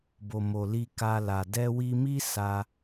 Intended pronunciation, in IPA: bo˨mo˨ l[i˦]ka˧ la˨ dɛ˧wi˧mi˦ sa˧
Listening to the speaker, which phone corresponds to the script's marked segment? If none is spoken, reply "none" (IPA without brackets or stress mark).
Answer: i˧